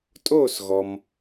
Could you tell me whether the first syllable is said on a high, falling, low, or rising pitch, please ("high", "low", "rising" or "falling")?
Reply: falling